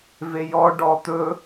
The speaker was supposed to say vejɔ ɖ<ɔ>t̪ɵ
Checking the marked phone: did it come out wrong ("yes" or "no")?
no